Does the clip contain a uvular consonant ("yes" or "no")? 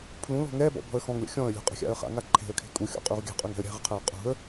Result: yes